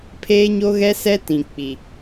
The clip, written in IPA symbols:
pʰeː˦ɲo˦ɣɛ˦sɛ˦ tĩ˨k͡pi˨

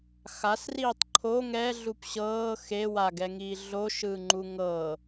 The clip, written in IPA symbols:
xasriːtˤ ǃʰo ŋɛ ɮupɕɤː xe waɡɛŋiː ɮoʃɯː ŋ͡ǃuŋɤ

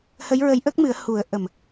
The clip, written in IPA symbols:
hə˧˥jɹə˧˥jʔə˦˥k̚mɨ˨˩˦ə̯ hu˨˩˦ə̯ʔə˨˩m

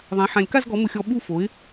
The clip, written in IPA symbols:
ðˤã˨˥ħã˧lʲka˥˧zɡɔ˨˥ mʊ˧xʲɔ˧ ɓu˥˧fo˨˥ɪ̯

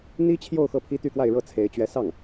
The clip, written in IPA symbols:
n̪i˥t͡ɕʰjo˥˧ʊ̯ xɤ˥˩pʰi˥ t̪y˥˧kwa˥˧ɪ̯ɻɤ˥˩ t͡sʰe˧˥ɪ̯ t͡ɕɥɛ˧˥sɑ˥˩ŋ

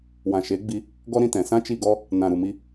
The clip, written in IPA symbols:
wã˨ ʃe˨˦ɡ͡bi˧ | ɡɔ˦ɾĩ˧tɛ̃˨ sã˦t͡ʃi˦˨ɡɔ˦ | nã˨ɾu˨ mi˦

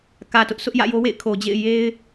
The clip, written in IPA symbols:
kä˨tʊ˦ʔ sʊ˦ʔjä̰˦˨jo˦wḛ˦˨ɪ̯ kʰo˨d͡ʑḛ˦˨ɪ̯ je˦ɪ̯

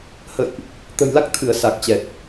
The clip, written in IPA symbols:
hə̰˧˨jʔ | t̪ə̤˨˩jla˦˥k̚ t̪ʰɨ˧˩ə̯ sa˨˩k̚t͡ɕɛ˨˩t̚

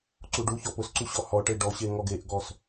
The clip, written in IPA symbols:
ǀuɖuçɔ pʊsǀu ɕɔhɔʈe ɖɔɕe ŋɔɡeʔɡɔs

